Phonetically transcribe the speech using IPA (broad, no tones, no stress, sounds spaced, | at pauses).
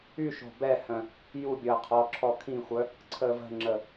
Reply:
y ʃ o̤ b ɛ h œ̃ | j u bʲ əː qʰ ɔ ǁʰ ɔ kʰ ĩ xʷ œ | ǀʰ əː v ə̤ ŋ͡ǁ ə